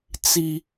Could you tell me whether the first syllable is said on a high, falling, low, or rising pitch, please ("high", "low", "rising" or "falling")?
high